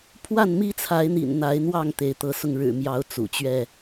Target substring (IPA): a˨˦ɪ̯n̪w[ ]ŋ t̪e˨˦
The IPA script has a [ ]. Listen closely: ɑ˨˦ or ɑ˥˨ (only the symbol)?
ɑ˥˨